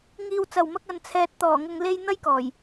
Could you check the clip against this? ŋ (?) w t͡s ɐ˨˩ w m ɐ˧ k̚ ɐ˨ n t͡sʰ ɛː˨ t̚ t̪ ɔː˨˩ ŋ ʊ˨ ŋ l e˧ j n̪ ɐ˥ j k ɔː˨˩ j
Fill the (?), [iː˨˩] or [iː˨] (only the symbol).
iː˨